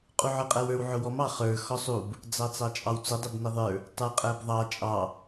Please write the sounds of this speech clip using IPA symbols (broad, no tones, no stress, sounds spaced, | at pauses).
qʼ u ʕ ə˞ qʼ æ w ə˞ w ʕ ʊ w ɔ m ɑ χ ə˞ x ɔ sˤ u b | d͡z ɑ t͡s ɑ t͡ʃʼ ɑ w t͡s ʊ dˤ ɪ b n ə ðˤ ə˞ | tˤ ə˞ qʼ æ b ðˤ ɑ t͡ʃʼ ɑ